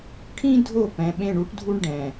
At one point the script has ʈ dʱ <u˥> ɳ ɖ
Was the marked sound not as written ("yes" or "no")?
no